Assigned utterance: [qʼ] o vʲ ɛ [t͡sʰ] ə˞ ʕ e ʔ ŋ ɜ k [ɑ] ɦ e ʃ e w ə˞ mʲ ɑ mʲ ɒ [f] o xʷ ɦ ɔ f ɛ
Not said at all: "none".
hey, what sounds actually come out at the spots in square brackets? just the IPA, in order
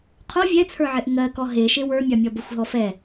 qʰ, t͡sʰ, ɔ, b

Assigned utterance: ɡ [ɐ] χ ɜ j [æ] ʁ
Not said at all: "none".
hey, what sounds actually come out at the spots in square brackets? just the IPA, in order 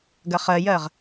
ɐ, ɜ

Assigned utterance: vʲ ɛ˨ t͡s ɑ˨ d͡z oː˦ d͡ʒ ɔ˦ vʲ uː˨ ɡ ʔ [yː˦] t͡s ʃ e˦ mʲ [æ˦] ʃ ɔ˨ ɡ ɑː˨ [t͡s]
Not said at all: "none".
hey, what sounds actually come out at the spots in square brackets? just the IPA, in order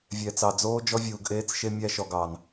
eː˦, æ˦, n

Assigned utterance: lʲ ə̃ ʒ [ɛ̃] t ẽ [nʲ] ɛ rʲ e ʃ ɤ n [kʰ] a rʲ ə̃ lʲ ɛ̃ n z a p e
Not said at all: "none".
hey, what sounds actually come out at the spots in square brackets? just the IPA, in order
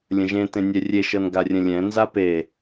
ẽ, nʲ, ɡ

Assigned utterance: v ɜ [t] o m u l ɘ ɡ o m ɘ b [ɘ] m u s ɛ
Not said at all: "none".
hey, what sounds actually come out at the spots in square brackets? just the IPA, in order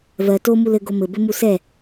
t, ɘ

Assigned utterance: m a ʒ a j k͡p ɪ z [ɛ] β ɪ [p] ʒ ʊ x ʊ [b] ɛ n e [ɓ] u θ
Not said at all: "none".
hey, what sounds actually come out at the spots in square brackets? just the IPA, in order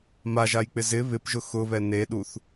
ɪ, p, β, ɗ

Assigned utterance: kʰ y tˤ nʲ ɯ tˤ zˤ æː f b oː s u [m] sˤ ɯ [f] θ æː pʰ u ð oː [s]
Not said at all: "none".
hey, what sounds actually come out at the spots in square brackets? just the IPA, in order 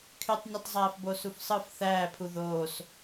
f, f, s

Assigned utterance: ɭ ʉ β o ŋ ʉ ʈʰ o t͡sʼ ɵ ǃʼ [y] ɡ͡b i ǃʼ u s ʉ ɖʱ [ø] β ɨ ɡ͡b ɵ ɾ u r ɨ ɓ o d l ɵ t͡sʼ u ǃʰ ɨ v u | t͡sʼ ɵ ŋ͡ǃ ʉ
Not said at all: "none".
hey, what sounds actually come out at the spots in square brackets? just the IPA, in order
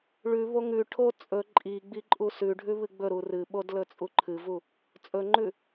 i, ʉ

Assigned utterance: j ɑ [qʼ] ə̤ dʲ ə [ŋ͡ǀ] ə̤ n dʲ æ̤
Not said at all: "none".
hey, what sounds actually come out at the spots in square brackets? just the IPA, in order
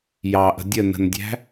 ʔ, n

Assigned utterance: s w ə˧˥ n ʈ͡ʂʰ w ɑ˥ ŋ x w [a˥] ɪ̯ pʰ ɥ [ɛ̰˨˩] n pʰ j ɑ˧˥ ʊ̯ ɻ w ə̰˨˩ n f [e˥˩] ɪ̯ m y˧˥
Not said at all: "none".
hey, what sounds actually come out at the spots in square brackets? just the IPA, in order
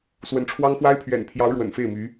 a˥, ɛ̰˨˩, e˥˩

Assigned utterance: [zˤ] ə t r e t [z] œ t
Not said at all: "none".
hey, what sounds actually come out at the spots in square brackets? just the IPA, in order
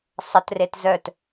sˤ, z

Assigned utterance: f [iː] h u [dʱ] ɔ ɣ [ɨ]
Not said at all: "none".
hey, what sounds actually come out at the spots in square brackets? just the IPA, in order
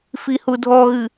i, dʱ, ɨ

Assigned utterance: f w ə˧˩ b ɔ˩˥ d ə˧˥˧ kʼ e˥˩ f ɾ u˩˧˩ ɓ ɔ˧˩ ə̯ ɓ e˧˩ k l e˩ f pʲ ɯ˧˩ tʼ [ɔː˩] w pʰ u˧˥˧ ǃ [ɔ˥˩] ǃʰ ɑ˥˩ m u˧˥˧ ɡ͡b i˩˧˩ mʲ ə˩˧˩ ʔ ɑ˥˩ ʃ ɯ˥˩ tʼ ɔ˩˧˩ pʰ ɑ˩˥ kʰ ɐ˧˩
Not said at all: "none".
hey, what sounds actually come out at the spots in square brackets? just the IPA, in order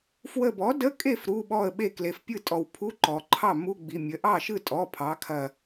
ɔ˩, ɔ˩

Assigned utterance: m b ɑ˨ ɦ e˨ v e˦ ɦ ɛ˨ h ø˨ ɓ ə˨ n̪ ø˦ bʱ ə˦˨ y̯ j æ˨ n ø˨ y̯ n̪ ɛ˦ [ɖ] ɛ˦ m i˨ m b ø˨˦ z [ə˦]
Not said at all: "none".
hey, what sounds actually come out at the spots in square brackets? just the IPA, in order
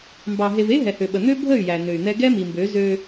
ɡ, ø˦

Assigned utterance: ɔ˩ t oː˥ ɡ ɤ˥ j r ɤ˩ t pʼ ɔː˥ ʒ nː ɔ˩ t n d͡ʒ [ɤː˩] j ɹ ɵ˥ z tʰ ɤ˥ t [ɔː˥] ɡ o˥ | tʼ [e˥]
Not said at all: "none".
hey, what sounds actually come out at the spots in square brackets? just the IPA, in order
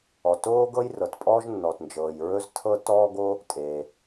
ɤː˩, ɔː˥, e˩

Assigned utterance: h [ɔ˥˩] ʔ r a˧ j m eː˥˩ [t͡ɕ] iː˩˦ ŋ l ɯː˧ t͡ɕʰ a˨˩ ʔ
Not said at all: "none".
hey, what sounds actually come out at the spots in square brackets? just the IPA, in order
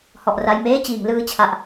ɔ˨˩, t͡ɕ

